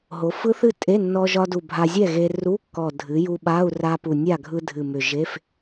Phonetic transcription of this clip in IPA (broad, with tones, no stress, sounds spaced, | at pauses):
ɦ o˩˧ f ɯ˦˥ θ ɨ˥˨ tʼ e˧˥˧ nː ɔ˧ ʒ ɒ˧ d u˨˩ bʱ a˧ zʲ ɛ˥˨ ɣ e˧ r u˧˥˧ kː ɔ˨˩ dʱ ɨ˩˧ j u˧ ɓ a˧˥˧ u̯ r a˧ p u˨˩ nʲ a˥˨ ɡʱ ɯ˧ dʱ ɨ˨˩ m ʏ˨˩ ʒ e˧˥˧ f